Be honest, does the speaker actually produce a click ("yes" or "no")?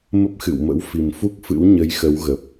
no